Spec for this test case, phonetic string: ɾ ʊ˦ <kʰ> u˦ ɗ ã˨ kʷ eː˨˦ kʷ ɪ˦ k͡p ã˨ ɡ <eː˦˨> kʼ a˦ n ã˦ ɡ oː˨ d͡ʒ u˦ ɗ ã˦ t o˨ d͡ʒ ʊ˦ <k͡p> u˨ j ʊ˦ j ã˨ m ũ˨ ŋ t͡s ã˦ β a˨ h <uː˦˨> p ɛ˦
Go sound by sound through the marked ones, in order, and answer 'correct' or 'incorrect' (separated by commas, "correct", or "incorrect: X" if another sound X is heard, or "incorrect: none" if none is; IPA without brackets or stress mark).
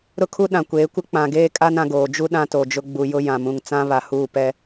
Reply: correct, incorrect: eː˦, incorrect: ɡ͡b, correct